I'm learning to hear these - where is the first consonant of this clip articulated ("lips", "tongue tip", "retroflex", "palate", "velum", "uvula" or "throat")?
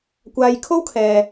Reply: velum